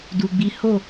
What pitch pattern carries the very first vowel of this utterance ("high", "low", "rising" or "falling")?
low